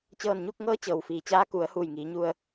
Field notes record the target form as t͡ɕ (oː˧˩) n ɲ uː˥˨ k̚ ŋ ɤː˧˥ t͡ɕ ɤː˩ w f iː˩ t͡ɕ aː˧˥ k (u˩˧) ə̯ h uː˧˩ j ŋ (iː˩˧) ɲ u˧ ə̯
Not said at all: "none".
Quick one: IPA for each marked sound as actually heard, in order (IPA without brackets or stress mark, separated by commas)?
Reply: ɤː˧˩, u˩˧, iː˩˧